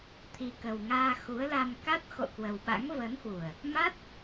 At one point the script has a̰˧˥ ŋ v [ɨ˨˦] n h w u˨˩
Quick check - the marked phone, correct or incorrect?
incorrect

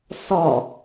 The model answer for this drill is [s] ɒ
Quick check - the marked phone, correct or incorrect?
correct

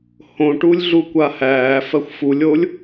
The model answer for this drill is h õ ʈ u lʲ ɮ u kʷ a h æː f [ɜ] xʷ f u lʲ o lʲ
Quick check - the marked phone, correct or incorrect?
correct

